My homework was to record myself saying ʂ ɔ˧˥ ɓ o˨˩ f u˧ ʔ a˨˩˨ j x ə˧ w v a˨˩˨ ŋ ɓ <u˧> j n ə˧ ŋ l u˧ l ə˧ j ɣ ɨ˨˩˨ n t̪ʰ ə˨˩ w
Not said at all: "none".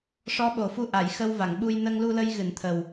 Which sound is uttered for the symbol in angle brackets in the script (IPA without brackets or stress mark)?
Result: u˧